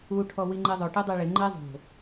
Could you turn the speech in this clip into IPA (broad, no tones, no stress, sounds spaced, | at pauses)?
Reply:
u ʈʰ ɔ w i ŋ͡ǃ e zˤ o ʈ e dˤ ɛ ɭ ɪ ŋ͡ǃ e zˤ o̤